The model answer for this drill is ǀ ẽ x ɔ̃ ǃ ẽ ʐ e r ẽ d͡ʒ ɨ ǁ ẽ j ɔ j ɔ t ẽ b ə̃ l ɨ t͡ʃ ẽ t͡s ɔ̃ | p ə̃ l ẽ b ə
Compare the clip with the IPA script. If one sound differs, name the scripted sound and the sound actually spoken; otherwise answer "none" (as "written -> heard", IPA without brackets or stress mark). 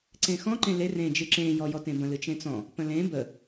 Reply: ʐ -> l